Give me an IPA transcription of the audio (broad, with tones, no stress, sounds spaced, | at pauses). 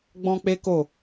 ɡ͡b ɔ̃˦ k͡p e˦ k o˦˨